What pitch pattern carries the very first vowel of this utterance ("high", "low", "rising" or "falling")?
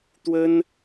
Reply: high